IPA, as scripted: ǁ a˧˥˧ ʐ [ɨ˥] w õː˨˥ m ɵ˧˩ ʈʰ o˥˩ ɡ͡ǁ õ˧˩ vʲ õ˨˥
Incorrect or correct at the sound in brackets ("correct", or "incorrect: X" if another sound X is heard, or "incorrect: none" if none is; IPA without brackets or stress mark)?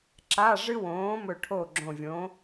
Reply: correct